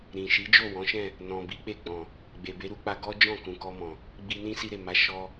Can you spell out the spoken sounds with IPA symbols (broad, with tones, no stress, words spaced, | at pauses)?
ɾĩ˨ ʃi˨˦d͡ʒo˦˨wɔ̃˨˦ʃɛ̃˦˨ | nɔ̃˨bi˨˦k͡pe˦˨ ɡ͡bɔ̃˨ | ɡ͡be˨be˨˦ɾu˧k͡pa˧ ɡɔ˦d͡ʒɔ̃˦˨kũ˨ kɔ˧mɔ̃˨ | ɡ͡bi˧nĩ˦si˧ɾe˨ ma˨˦ʃɔ˧